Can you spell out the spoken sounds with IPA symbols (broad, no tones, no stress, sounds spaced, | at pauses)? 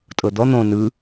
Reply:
tʼ ɤ d̪ ɔ n̪ õ n ɯ